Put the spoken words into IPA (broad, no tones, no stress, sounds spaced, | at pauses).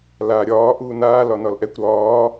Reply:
l a ɾʲ ɒː ʔ uː n aː l ɒ n ɒ l ʔ ɛ kʷ ɾ ɒː